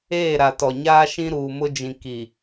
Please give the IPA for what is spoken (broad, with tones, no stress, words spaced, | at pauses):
eː˦˨ɾa˨tɔ˨ɲaː˦ ʃĩ˦ɾuː˨mʊ˦d͡ʒĩ˨ ki˨